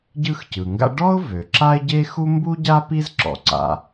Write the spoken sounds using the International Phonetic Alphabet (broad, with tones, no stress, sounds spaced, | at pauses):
ɟ ɯ˥ x c ɯ˩ ŋ ɡ a̰˥ ɖ ɔ˥ ʊ̯ v ø˩ ǁ a˥ ɪ̯ ɟ e˥ x u˥ m b u˥ ɟ a˥ p i˥ z ǁ ɔ̰˩ ǀ a̰˩